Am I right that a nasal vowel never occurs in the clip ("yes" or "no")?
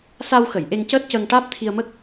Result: yes